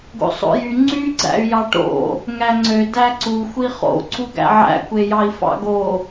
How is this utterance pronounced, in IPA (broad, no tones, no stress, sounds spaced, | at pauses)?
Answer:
ɡ o̰ sˤ o̰ j y ŋ͡ǀ y ɡ͡ǀ æ̰ y̯ j ɑ ʈ o̰ | ŋ æ ŋ͡ǀ ø d æ ǀ u xʷ i χ o̰ ǀ u ɡ æ̰ ʕ æ̰ kʷ e j ɑ i̯ f ɑ̰ ɡ o